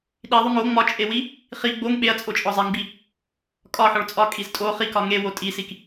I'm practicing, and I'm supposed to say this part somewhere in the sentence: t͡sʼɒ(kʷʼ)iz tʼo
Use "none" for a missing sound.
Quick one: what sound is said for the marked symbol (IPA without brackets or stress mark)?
kʼ